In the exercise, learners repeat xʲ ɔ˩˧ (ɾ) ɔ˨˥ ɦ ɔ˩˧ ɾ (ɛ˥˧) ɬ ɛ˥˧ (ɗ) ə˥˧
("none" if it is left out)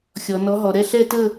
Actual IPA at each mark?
n, ɛ˥˧, t

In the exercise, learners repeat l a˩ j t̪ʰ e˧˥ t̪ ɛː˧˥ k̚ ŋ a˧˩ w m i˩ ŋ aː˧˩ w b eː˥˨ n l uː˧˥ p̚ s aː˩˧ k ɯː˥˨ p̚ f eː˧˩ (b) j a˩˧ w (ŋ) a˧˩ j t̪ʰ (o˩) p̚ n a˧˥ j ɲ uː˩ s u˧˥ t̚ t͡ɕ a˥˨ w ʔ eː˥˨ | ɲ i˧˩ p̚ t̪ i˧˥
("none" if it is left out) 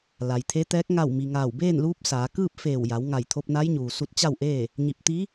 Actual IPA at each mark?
w, ŋ, o˧

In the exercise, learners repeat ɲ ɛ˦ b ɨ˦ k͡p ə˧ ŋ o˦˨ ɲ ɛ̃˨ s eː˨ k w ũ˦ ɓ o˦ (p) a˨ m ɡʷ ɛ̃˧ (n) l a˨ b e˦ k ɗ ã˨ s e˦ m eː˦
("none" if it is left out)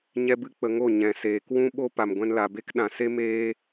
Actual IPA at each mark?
p, n

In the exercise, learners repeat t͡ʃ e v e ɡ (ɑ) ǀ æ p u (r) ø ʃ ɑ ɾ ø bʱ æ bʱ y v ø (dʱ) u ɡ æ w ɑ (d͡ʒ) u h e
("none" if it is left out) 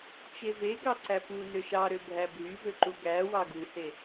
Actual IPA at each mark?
ɑ, n, ǃ, ɡ

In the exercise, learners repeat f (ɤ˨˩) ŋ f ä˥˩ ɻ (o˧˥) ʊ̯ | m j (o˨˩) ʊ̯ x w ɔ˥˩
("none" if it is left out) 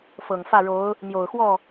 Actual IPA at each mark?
ɤ˨˩, o˧˥, o˨˩

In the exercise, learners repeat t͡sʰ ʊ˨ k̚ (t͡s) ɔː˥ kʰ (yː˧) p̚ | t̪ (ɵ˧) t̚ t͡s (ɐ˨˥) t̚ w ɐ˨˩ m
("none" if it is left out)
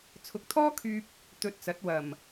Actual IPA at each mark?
t̪ʰ, yː˧, ɵ˧, ɐ˨˥

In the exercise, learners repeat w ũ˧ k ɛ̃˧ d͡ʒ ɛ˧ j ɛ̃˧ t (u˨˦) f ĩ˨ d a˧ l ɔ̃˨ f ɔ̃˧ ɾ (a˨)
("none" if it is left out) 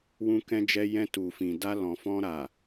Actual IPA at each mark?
u˨, a˨

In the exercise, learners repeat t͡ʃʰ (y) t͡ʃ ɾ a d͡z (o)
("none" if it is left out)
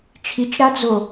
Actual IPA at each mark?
i, o

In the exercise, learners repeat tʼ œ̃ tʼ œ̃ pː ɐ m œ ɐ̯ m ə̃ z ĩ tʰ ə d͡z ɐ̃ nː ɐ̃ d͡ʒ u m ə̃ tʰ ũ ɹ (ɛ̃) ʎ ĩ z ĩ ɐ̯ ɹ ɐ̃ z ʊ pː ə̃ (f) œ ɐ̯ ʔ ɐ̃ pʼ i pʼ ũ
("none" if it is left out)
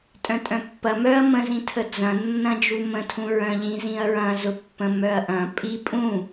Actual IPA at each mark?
œ̃, m

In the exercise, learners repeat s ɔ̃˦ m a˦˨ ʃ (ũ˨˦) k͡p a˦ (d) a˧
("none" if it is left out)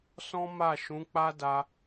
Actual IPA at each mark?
ũ˨˦, d

